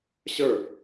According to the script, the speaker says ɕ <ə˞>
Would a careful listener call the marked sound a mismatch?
no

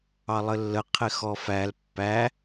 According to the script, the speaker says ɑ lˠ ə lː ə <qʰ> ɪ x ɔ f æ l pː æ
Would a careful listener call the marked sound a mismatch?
no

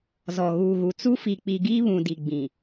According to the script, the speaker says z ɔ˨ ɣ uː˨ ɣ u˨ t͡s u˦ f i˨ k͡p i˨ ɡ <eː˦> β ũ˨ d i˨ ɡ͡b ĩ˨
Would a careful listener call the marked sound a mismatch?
yes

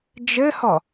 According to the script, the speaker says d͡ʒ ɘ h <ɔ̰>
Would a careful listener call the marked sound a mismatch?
yes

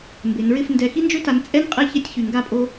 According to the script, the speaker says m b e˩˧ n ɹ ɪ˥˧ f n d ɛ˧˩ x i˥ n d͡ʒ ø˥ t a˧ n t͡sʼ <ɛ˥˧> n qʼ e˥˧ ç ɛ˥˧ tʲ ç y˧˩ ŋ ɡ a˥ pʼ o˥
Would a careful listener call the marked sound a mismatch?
yes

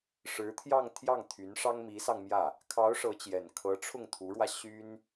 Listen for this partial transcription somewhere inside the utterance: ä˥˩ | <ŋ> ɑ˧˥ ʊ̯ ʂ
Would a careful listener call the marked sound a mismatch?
yes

